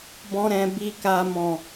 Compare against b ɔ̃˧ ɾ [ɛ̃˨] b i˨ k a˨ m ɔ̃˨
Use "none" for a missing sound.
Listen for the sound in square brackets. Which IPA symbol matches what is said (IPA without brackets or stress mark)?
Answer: ɛ̃˨